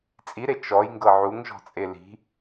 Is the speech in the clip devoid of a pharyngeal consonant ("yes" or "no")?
no